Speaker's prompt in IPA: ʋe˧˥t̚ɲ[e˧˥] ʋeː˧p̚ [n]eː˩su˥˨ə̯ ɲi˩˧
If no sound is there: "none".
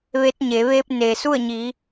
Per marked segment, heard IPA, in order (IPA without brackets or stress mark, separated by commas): e˩˧, n